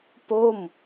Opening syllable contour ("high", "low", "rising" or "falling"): falling